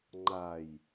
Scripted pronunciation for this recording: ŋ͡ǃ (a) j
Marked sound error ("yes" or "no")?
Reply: no